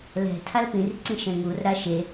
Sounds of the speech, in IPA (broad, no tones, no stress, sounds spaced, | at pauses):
l ɛ̤ tʰ a l p ĩ r ǀ ĩ ʃ ɛ̃ ŋ u r ɾ a ʃ e